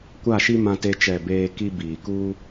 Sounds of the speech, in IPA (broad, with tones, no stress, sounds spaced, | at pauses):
kʷ a˦˨ ʃ i˦ m ã˦ t e˦ t͡ʃ ɛ˦˨ b eː˦ k i˦ b iː˨ k u˦